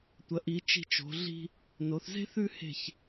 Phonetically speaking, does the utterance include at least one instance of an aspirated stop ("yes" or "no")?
no